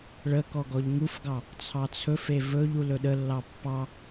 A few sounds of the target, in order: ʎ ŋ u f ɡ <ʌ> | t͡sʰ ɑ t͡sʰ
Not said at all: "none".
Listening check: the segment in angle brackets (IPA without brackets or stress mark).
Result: ɑ